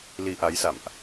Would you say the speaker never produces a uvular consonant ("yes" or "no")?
yes